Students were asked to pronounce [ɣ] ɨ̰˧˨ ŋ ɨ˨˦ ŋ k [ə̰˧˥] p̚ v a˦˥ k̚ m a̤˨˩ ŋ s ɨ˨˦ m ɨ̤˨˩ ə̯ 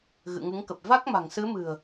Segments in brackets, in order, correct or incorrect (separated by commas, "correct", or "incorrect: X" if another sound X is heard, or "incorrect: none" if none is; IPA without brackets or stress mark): correct, incorrect: ə˨˩